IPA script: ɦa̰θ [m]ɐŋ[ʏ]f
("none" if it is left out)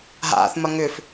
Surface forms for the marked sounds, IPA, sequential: m, ʏ

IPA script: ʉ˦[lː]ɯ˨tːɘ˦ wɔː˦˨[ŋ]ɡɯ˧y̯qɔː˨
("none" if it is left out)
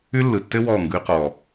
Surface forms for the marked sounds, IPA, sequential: lː, ŋ

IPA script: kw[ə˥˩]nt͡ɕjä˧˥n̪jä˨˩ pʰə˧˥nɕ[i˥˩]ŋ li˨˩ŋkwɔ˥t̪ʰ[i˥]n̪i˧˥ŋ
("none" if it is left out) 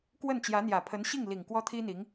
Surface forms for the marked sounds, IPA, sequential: ə˥˩, i˥˩, i˥

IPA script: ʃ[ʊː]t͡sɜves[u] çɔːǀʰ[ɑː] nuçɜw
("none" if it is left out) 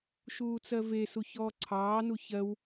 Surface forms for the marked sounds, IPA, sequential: uː, u, ɑː

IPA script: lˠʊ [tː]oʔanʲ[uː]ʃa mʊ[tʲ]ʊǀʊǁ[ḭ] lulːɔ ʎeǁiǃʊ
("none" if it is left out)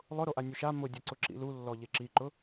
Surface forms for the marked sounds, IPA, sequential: ɾ, u, dʲ, ḭ

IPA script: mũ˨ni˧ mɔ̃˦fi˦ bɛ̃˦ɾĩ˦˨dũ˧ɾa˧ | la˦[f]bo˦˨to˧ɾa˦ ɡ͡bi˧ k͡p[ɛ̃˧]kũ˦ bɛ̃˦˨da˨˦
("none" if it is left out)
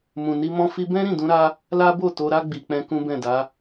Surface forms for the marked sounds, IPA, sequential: none, ɛ̃˦

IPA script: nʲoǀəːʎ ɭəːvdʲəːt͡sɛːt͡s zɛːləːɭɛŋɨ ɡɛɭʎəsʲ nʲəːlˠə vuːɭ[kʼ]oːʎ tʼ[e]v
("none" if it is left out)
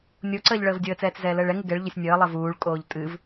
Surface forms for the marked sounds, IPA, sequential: kʼ, ɨ

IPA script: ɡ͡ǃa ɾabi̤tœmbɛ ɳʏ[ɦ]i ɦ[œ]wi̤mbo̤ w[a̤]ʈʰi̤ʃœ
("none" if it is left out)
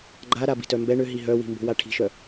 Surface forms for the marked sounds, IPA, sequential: ɦ, œ, a

